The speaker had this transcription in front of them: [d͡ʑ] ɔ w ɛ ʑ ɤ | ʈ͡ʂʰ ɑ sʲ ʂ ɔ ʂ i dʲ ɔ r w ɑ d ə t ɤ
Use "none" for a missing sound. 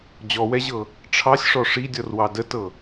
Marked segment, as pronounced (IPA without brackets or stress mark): d͡ʑ